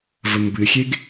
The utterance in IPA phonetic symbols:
vəmbɨxʲeɡ

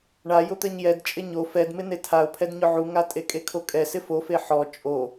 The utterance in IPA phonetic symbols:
ɳajʊt̪ɛɲ jɛdt͡ʃʼɪ ɲo fɛdmɪ netʰaʊ̯pʰɛdɲʊ ʕuŋa tʼekʼekʰokʼɛ sɪfofe ħɔ t͡ʃʼo

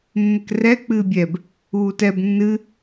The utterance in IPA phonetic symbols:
mːɘkrɛ k͡pɨːbʲɛb | uːtɛb nːɨ

